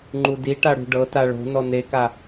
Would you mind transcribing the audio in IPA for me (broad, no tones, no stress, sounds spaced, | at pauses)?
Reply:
ŋ͡ǃ u d i ʈ a ɽ ṳ ɖ ɤ t a ɭ o̤ n ɔ n e k a